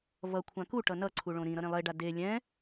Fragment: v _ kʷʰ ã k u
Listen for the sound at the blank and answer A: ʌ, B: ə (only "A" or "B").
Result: A